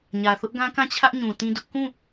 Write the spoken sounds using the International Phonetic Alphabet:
ɲ ä˨ θ ʊ˦ ʔ ɡ ã˦ k ã˦˨ t͡ɕʰ ä˦ ʔ ɲ ũ˨ t ĩ˦ d ʊ˦ ʔ k ũ˦˨

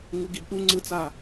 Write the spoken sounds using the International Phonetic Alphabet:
ŋ u ɡ i b ɗ u ŋ͡ǀ ɯ t͡s a

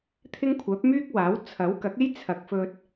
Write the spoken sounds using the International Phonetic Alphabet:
t̪ʰ ɪ˥ ŋ kʷʰ œː˨˥ p̚ m yː˥ k̚ w aː˨˥ w t͡sʰ ɐ˨˥ w k ɐ˨˥ k̚ e˥ j t͡sʰ ɐ˨˥ k̚ f ɵ˧ t̚

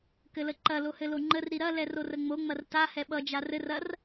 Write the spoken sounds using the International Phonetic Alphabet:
k ɘ l ə ǃ ɐ l o h ɘ l o ŋ͡ǃ ə r ɾ i ɾ ɐ l ɛ r o r ə ŋ͡m o ŋ͡m ɐ r t a h ɛ ɓ ʌ d͡ʒ a r ɘ r ɐ r

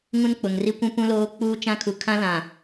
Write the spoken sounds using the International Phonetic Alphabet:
ŋ ũ˦ n k͡p ʊ˨ ŋ r i˦ kʷ ũ˦ p ũ˦ l oː˦ k͡p uː˦ t͡ʃ ã˦ kʰ u˨ kʰ ã˦ l ã˨

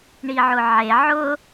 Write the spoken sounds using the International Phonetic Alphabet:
ɳ i ʕ ʊ ʕ e ʕ ʊ

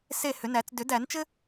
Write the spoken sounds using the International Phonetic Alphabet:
s e˦˨ h ʏ˨˩˦ n æ˨˩˦ t͡s d ʏ˨˩˦ d æ˨˩˦ n t͡ʃ ɘ˥

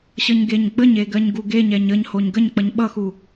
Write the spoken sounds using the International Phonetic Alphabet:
ɕ ʌ ɲ ɡ e ɲ ɡ͡b ə ɲ e ɡ ɜ ɲ ɡ u ɡ e ɲ ɛ ɲ ə ɲ h o ɲ ɡ ə ɲ k͡p ʌ ɲ ɓ ʌ x u

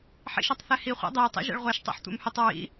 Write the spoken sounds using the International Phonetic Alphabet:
ħ ḭ ʃ ɔ tˤ θ ɛ h i χʷ ɛ̰ dˤ ɛ j tˤ ɛ̰ ʒ ɛ̰ ɭ ʁʷ ɛ ʃ tˤ ɛ̰ ħ tʷ ɛ̰ m h ʏ tˤ ɹ ḭ

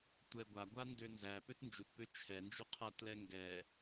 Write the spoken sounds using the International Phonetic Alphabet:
tʷ ɛ ɡʷ a ɡʷ a n d ø n z æ p ø t n d͡ʒ u t p ø t͡ʃʰ ɛ n d͡ʒ u qʰ a t l ɛ ŋ ɡ ɛ

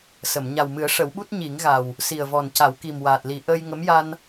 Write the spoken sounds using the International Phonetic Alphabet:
s ə˨˩˨ m ɲ a˨˩ w m ɨ˨˩˦ ə̯ ʂ ə˨˩˦ w ɓ u˦˥ t̚ ɲ i˨˩˦ ŋ ɣ a˨˩ w | s i˨˩ ə̯ v ɔ˨˩ n c a˨˩˦ w k i˨˩ m w aː˨˩ t̚ l i˨˩˦ ʔ əː˧ j ŋ ə˧˥ m j a˧ n

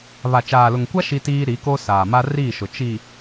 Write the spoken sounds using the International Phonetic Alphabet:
β a˨ t͡ʃ aː˨ l ʊ˨ ŋ kʷ a˦ ʃ i˦ t iː˦ ɾ i˨˦ k o˦ s aː˨ m a˦ r iː˦˨ ʃ ʊ˨ t͡ʃ i˨

